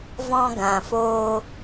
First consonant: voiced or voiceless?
voiced